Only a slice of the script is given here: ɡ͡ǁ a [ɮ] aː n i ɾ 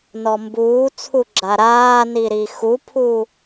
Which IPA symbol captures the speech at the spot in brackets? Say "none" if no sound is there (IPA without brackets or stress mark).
ɾ